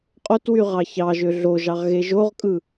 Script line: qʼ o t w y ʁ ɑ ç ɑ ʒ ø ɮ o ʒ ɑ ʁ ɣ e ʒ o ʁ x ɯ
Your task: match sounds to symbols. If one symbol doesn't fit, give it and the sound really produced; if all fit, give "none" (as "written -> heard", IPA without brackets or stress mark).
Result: x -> kʼ